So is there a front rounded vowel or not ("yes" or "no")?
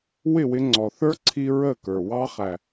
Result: no